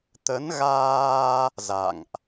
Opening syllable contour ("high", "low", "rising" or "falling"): rising